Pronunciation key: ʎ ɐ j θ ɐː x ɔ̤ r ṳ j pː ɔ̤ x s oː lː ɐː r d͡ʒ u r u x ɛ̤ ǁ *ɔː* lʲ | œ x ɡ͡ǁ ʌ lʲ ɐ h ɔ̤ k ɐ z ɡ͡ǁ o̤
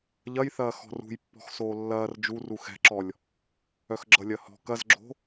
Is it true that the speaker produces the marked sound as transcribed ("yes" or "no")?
no